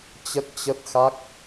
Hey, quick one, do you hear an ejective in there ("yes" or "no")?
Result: no